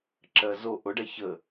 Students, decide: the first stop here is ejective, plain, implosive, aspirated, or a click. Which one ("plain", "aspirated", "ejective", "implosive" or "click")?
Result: click